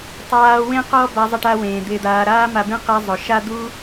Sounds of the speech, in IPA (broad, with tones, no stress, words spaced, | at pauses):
tˤaː˦wẽ˥qɔ˥ ba˦zˤɪ˦ʈa˦ wẽː˩d̪ɪː˨d̪aː˨ ɾaː˦ma˨bẽ˦ qɛ˦zˤʊ˩ ʃa˦d̪u˦